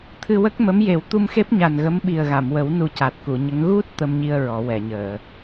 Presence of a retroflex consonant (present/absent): absent